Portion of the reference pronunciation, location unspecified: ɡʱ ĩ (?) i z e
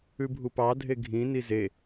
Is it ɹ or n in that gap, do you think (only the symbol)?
n